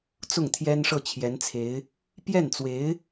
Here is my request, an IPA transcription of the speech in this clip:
t͡s ʊ˥˩ ŋ t̪ʰ j ɛ˥ n ʂ ɤ˥˩ t͡ɕʰ j ɛ˧˥ n t͡sʰ e˧˥ ɪ̯ | p j ɛ˥˩ n t͡s w e˧˥ ɪ̯

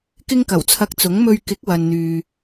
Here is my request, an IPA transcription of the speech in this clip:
k ɪ˥ ŋ k ɐ˨˩ w t͡sʰ ɐ˧ k̚ t͡s ʊ˨˥ ŋ m ɵ˧ ɥ k ɪ˨˥ k̚ w ɐ˨ n n̪ yː˨

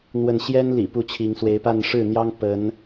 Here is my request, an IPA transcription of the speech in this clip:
n̪ w ə˥˨ n ɕ j ɛ˦ n l ḭ˨˩ p u˥˨ t͡ɕʰ i˨˦ ŋ s w e˨˦ ɪ̯ p a˥˨ n ʂ ɻ̩˥˨ n̪ j ɑ˦ ŋ p ə˨˦ n

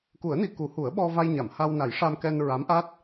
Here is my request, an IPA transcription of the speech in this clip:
k u˨˩˦ ə̯ n i˨˩ k u˨˩˦ h u˨˩˦ ə̯ ɓ ɔ˧ v a˧ j ɲ a˨˩˨ m h a˧ w n a˨˩˦ j ʂ a˧ m k ɛ˧ n ɹ a˧˥ m ʔ a˦˥ t̚

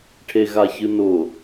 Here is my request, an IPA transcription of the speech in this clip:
ʈʰ e ɣ a ç ɨ n ʊ

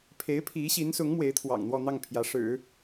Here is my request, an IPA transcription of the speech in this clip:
pʰ e˧˥ ɪ̯ pʰ i˧˥ ɕ i˧˥ n s ʊ˧˥ ŋ m w e˧˥ ɪ̯ t̪ʰ w ɑ̰˨˩ ŋ n̪ w ɔ˥˧ n̪ ɑ˥˩ ŋ pʰ j ä˧˥ ʂ ɻ̩˨˩˦

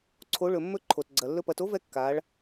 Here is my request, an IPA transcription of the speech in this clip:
ǀʰ o˩˧ ɭ ɵ˩ mː ɵ˧ ǃʰ o˩ t ɡ͡ǀ ɐ˩ lː ɵ˧ p ɐ˩˧ t o˧˥ v ɛ˧ kː a˩˧ ɭ

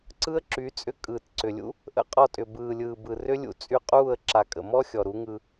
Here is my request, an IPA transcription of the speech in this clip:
ǀ ɯ˦ ə̯ ǁ y˨˦ t͡sʼ ʏ˦ kʼ ɯː˨ t ǀ ʏ˨ lʲ ṵ˦ | ʔ ə̰˦ qʼ ɔ˧ tʼ ʏ˨ b ɯː˨ lʲ ɯː˨ b ɯ˨ r ʏ˦ lʲ ṵ˧ t͡sʼ y˧ qʼ uː˦˨ ə̯ ǁ a˨ kʼ ə̰˨ m ɔ˦ xʲ ɔ˨ ɾ u˨˦ ŋ ɯ˧

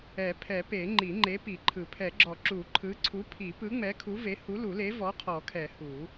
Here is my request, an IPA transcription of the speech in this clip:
ɛ˨˩˦ pʰ ɛ˨˩˦ p e˨˩˦ ŋ͡ǃ i˨˩˦ ŋ͡ǃ e˨˥ p i˨˩˦ ǃʰ ɯ˨˩˦ pʰ ɛ˨˩˦ ɡ͡ǁ ɔ˨˩˦ ǁ u˨˩˦ ǃʰ ɯ˨˥ ǀʰ u˨˥ pʰ i˨˩˦ p ɯ˨˥ ŋ͡m ɛ˨˥ kʰ u˨˥ v e˨˥ h u˨˥ l u˨˩˦ l e˨˥ v ɔ˨˥ qʰ ɔ˨˩˦ kʰ ɛ˨˩˦ h u˨˩˦

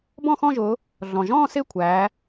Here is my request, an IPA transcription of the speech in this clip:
b ɔ̃˥˨ x ɔ̃˥˨ ʒ ʊː˩˧ | ɮ ɔ̃˩ ʒ ɔ̃ː˥˨ s ɪː˥˨ kʷʰ æː˩˧

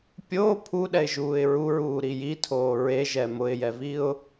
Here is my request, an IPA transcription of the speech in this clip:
pʲ o pʰ u ɗ ɛ ɪ̯ ʒ uː ɪ̯ ɹ u ɹ uː ɾ i j i tʰ oː ɹ e ʒ ɛ m ʊ ɪ̯ j ɛ v i ʊ̯

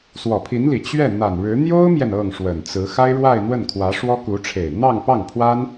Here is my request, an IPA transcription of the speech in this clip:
s w ɔ˨˩ pʰ i˧˥ n l i˨˩ t͡ɕ ɥ ɛ˥˩ n̪ a˨˩ n ɻ ɻ̩˧˥ n̪ j o˥ ʊ̯ m j ɛ˨ n ɤ˥˩ ŋ ʂ w ə˨˩ n t͡s ɹ̩˧˥ x a˥ ɪ̯ ɻ w a˥˧ ɪ̯ n̪ w ə˥˩ n kʰ w ä˧˥ ʂ w ɔ˥ k u˧˥ ʈ͡ʂʰ e˨˩ ɪ̯ n̪ ɑ˥˧ ŋ p ɑ˥˩ ŋ pʰ w a˥ n

